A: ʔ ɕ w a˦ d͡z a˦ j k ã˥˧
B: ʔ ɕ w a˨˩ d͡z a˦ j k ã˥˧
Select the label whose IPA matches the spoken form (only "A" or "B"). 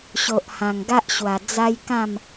B